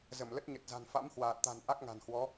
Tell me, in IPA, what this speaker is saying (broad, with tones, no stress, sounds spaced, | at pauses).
z ə˧˩ m l ə˦˥ t̚ ɲ ə˨˩ t̚ z a̤˨˩ n f a̰˧˥ m h w aː˨˩ t̚ t̪ a̤˨˩ n ʔ a˦˥ k̚ ŋ a̤˨˩ n h w ɔ˨˦